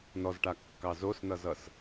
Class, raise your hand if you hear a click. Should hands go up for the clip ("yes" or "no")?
no